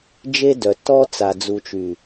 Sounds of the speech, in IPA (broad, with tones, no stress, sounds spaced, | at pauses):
d͡ʒ e˦ d œ˨ t ɔ˦ t͡s a˨ d͡z u˨ t͡ʃ y˨